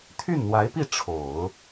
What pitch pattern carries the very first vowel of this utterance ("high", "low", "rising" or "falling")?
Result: falling